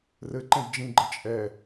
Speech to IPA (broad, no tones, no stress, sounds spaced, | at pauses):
r ɘ ǃ ɛ̃ d d͡ʒ ĩ ɡ͡ǃ ɘ t͡ʃʼ ɛ